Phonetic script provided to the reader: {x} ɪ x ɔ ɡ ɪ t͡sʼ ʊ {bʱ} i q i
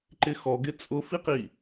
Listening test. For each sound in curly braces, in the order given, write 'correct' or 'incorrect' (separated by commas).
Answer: incorrect, incorrect